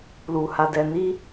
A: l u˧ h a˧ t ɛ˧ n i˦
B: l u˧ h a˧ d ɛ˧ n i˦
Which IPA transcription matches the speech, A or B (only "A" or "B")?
B